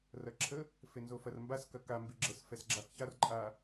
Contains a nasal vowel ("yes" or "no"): no